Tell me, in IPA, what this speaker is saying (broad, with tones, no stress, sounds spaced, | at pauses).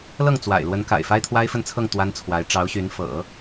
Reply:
l ɤ˥˩ ŋ t͡s w a̰˨˩ ɪ̯ l w ə˧˥ n k a̰˨˩ ɪ̯ f a˥ ɪ̯ t̪ʰ w a˥ ɪ̯ f ə˥˧ n t͡sʰ ɤ˥˩ ŋ t̪ w a˥ n t͡sʰ w a˧˥ ɪ̯ ʈ͡ʂ ɑ˧˥ ʊ̯ ɕ y˧˥ n f ɤ̰˨˩˦